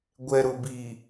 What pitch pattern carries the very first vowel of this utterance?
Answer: low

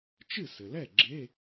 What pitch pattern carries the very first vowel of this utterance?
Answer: falling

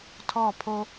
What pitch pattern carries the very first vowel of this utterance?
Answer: falling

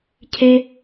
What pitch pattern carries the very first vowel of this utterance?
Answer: high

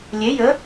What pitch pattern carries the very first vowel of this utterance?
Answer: rising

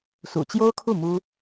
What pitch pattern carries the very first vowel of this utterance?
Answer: low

